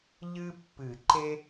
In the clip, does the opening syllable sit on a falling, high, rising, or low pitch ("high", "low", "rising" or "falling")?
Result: high